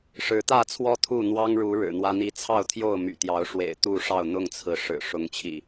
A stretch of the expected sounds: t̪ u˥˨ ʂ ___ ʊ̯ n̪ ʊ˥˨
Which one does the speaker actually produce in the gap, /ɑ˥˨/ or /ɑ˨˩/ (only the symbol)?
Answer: ɑ˥˨